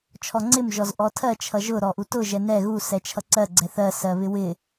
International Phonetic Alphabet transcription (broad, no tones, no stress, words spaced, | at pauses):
t͡ʃʰɔŋ͡ǀɪm ʒɔzʔɔtʰɜ t͡ʃʰʌʒʊ ɾɔʔutʊ ʒɛnɛ ɣu sɛt͡ʃʰʌǀɜ ɡ͡ǀɛθɜ sɜβɪwɪ